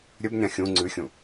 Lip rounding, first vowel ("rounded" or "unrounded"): rounded